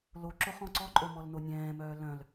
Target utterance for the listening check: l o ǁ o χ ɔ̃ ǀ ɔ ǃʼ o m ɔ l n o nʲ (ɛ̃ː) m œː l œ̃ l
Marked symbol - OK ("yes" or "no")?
yes